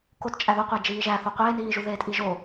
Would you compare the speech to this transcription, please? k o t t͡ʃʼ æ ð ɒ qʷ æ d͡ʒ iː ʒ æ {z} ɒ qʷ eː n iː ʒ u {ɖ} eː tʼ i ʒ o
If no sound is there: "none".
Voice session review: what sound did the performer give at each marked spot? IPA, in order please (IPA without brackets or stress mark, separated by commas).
θ, ð